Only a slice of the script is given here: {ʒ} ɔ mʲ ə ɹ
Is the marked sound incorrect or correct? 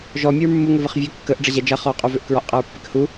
correct